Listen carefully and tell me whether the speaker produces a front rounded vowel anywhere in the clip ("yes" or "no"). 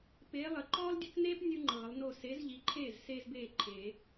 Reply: no